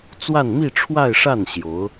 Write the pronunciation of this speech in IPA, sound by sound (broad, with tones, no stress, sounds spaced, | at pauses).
t͡s w a˥˧ n m i˥˧ ʈ͡ʂʰ w a˥˧ ɪ̯ ʂ a˥˩ n ɕ j o˧˥ ʊ̯